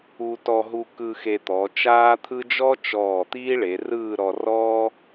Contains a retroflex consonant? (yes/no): yes